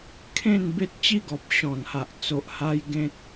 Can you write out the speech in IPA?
kʰ ẽ˥˧ n b e˦ t̚ t͡ɕ i˦ ɡ ɔ˨ p̚ ɕ ɔ̃˨˩ n h a˨ ʔ t͡s o˨ ʔ h a˧ j ɡ ẽ˦ t̚

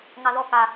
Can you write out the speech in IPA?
ŋ ɑ ð ɔ k a

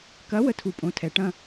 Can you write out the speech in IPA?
k ɐ˨˥ w ə˨˥ tʰ u˨ pʼ õ˨˥ tʰ ɛ˨ ʈ ɐ̃˥˧

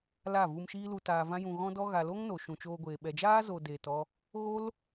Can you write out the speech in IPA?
l a˦˨ v u˧ m ʃ iː˦ l u˧ t aː˧ v ã˦ j ũ˧ ɣ ɔ̃˦ d ɔ˦ ɣ a˨ l o˦ ŋ n o˨ ʃ ũ˨ t͡ʃ oː˧ ɡʷ eː˨ ɓ ɛ˨ d͡ʒ aː˦ z o˨ d eː˨ t ɔ˧ | ɣ o˦ l

